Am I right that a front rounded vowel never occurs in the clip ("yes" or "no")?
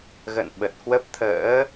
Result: yes